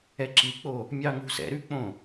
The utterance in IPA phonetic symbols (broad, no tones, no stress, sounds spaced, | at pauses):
ɛ ǁ i k͡p o | mʲ ɑ ŋ ṳ s ɛ̰ ɾ ʉ k͡p õ